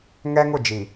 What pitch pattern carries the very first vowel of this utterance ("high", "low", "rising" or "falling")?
high